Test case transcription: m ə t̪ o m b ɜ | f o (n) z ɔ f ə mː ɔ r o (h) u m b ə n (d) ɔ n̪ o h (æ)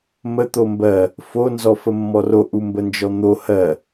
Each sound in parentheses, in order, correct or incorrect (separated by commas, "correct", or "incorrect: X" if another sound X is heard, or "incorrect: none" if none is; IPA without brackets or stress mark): correct, incorrect: ʔ, incorrect: d͡ʒ, incorrect: ɜ